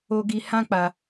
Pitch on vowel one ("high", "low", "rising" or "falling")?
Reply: high